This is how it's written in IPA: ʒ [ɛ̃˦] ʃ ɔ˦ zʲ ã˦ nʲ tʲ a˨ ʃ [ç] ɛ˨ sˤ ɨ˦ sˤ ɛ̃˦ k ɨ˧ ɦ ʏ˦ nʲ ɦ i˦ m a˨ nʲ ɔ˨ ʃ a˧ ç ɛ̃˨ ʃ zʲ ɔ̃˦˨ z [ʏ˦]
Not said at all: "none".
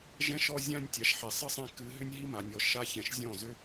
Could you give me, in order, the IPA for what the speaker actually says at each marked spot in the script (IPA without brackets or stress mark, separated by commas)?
ɛ̃˦, ħ, ʏ˦